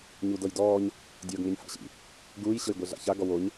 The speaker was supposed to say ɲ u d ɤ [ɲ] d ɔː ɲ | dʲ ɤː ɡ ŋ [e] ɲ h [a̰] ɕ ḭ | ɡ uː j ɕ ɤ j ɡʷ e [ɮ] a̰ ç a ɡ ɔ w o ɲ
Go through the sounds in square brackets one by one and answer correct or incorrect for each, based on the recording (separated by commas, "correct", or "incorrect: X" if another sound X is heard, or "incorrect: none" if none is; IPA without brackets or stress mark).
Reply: incorrect: j, correct, correct, correct